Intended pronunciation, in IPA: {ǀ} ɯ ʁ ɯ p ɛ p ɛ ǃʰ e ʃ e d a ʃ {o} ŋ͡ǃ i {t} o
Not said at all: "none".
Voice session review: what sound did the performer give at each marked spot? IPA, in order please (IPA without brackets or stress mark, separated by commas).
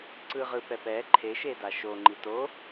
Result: ǀ, o, t